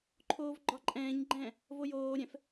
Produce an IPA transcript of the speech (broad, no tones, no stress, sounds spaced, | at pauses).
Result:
ǃʰ oː v ɡ͡ǃ ɒ ǃʼ ɛ̃ː ɲ ɡ͡ǃ ɛ̃ː | v o j oː ɾʲ ɛ̃ f